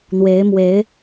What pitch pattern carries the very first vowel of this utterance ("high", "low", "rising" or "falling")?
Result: rising